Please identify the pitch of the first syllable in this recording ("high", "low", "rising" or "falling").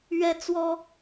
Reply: high